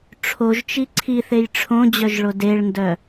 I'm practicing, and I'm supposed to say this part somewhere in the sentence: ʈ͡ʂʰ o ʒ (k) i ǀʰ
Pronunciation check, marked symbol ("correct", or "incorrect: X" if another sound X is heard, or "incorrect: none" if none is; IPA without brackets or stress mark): incorrect: t͡ʃ